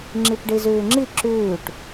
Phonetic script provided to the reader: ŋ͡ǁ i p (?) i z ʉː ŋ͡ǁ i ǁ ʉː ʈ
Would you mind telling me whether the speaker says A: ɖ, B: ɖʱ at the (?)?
A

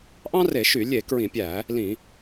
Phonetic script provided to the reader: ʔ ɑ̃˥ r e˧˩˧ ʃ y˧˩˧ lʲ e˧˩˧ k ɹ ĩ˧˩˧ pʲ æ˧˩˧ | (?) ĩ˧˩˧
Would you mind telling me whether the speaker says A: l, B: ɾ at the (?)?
A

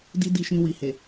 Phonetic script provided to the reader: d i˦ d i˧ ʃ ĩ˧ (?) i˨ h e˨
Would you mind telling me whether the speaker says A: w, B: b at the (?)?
A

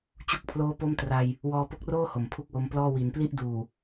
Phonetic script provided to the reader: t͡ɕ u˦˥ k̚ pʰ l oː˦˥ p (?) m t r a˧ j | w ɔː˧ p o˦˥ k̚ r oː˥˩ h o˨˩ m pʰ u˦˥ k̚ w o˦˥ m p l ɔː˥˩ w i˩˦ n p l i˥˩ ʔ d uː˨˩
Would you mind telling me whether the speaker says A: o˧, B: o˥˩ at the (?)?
B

